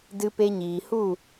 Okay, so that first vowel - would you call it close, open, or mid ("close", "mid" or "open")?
close